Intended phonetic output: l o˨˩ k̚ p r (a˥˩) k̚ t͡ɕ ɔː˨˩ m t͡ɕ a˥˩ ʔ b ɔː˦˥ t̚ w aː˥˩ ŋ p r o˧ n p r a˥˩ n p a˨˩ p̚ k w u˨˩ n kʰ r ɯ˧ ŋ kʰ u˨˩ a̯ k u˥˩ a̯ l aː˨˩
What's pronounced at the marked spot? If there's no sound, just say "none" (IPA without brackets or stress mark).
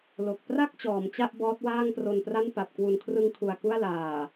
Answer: a˥˩